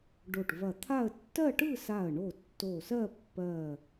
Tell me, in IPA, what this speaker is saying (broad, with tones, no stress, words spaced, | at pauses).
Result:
ɖo˧˩ʈvɐ˧˩t̪ʰa˥˧ə̯ tːɜ˥˧ʈɯ˥˧sa˧˩ə̯ɳo˧˩ tːo˧˩sɜ˥˧pːɜ˧˩